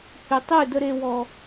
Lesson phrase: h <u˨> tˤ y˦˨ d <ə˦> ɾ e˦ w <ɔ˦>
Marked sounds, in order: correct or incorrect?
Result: incorrect: y˨, correct, correct

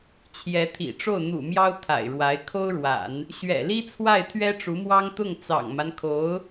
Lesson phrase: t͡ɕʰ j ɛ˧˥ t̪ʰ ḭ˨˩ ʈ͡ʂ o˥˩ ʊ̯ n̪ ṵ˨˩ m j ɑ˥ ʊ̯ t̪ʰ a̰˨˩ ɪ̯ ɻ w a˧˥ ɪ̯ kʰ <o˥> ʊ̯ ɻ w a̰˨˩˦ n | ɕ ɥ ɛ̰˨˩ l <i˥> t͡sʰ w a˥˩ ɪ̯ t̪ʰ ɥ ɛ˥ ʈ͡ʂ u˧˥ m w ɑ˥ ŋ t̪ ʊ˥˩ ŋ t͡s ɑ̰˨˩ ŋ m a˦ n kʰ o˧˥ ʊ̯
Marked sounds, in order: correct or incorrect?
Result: correct, correct

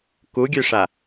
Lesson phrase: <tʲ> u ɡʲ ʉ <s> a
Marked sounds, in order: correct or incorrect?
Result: incorrect: k, incorrect: ʂ

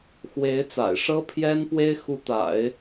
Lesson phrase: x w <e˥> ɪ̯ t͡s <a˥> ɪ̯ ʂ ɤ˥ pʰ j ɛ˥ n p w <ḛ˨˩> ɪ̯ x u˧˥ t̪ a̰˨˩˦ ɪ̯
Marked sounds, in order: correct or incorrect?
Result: incorrect: e˧˥, incorrect: a̰˨˩, incorrect: e˥

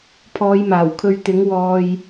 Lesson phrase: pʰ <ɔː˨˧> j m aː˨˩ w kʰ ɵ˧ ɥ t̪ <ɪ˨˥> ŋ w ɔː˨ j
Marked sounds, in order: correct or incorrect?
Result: correct, correct

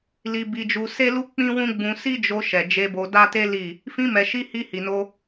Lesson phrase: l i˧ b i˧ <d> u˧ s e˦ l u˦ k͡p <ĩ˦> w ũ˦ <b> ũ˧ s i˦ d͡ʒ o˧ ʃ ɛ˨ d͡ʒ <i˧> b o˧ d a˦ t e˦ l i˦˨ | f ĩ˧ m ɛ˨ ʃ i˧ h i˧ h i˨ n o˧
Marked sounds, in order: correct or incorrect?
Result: incorrect: d͡ʒ, correct, incorrect: ɡ͡b, incorrect: e˧

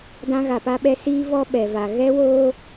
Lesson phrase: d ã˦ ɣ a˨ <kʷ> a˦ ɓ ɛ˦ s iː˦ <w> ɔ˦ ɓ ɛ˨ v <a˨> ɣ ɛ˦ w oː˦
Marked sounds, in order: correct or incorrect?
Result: incorrect: p, incorrect: v, correct

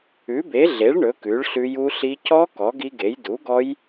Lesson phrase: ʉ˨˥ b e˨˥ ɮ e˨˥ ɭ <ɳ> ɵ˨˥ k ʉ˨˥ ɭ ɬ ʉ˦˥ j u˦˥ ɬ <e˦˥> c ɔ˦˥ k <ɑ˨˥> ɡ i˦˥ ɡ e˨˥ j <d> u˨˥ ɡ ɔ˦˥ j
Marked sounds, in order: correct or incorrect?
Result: correct, incorrect: i˦˥, incorrect: ɔ˨˥, correct

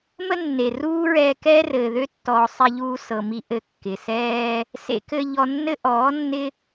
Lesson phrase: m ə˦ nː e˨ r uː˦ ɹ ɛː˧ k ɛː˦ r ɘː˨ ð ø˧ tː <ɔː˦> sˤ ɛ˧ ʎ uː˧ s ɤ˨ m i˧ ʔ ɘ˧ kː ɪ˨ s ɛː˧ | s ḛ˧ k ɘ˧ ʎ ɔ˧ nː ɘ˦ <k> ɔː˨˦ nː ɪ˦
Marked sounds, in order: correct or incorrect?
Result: incorrect: ɔː˨, incorrect: ʔ

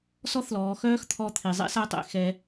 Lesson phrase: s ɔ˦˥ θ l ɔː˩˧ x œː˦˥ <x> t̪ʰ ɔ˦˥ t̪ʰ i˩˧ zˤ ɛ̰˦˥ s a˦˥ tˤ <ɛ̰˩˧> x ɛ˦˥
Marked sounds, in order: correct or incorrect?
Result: correct, correct

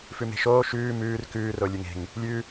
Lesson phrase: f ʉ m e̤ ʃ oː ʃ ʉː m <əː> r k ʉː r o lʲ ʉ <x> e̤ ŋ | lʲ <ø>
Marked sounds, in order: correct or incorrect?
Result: incorrect: ʉː, incorrect: ŋ, incorrect: ʉ

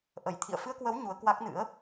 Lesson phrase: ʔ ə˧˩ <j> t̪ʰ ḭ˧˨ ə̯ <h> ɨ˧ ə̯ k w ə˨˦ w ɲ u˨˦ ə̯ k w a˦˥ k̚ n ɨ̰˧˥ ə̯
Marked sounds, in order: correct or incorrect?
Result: correct, incorrect: f

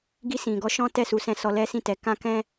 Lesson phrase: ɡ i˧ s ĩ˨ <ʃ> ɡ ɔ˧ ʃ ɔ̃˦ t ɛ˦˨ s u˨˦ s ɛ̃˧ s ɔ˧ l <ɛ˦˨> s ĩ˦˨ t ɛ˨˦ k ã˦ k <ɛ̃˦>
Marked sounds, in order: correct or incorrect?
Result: incorrect: none, incorrect: ɛ˦, correct

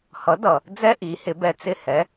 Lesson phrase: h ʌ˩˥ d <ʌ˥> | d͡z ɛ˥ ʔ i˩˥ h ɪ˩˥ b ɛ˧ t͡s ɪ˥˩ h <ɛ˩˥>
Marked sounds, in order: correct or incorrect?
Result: incorrect: ʌ˩, correct

